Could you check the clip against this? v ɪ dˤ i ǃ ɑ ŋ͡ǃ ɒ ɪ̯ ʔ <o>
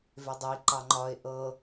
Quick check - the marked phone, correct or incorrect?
incorrect